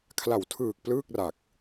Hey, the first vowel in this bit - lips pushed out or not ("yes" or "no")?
no